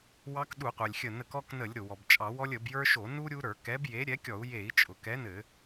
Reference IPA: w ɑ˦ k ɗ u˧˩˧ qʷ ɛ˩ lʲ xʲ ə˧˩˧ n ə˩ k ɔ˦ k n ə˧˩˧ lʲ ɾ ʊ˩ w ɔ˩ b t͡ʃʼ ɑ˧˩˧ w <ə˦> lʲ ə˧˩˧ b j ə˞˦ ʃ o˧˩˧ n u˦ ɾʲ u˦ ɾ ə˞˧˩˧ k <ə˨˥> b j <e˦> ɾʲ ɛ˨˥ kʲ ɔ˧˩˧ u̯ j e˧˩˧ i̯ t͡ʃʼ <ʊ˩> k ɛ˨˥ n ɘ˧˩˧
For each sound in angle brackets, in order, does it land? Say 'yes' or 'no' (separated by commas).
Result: no, no, no, yes